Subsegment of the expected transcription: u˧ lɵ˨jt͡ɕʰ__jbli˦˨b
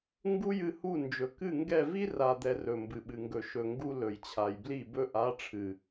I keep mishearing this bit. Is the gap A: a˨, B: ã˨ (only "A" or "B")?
A